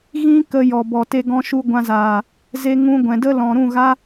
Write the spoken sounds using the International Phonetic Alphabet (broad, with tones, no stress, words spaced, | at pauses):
ɣĩ˦ kə˧ jɔ˨bɔ˨ te˧ ɡɔ̃˧ʃu˧ ɡʷã˧zaː˨ | ze˧ŋũ˧ ɡʷɛ̃˨də˦ lɔ̃˨ɾũ˦˨ɣa˦